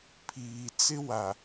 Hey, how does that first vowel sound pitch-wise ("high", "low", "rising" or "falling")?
low